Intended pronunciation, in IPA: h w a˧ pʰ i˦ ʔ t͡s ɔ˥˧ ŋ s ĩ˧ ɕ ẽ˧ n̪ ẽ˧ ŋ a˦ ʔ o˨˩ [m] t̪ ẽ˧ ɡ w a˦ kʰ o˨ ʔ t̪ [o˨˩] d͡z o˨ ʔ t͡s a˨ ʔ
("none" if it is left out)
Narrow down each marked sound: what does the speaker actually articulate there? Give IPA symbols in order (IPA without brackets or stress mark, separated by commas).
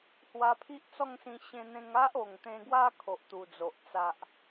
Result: ŋ, u˨˩